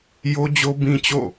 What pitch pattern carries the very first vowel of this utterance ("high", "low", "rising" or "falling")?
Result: high